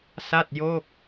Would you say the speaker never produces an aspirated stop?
yes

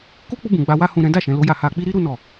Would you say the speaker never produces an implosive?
yes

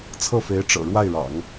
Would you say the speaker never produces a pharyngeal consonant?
yes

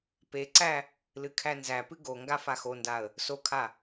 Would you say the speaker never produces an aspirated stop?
no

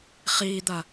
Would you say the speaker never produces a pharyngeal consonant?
yes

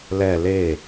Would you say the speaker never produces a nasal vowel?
yes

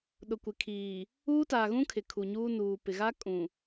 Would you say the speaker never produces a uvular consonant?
yes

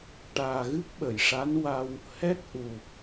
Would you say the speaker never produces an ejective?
yes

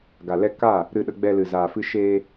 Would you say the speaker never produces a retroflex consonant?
yes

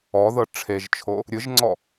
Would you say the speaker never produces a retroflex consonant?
no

